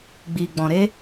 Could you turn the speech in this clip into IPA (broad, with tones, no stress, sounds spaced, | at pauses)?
ɡ͡b iː˨ ɡ͡b ɔ̃˨ ɾ e˦